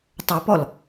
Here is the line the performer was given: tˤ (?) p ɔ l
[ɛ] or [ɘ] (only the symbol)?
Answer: ɘ